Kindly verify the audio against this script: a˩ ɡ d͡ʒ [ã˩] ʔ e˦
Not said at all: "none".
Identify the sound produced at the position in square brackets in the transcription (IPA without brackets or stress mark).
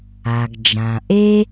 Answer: ã˩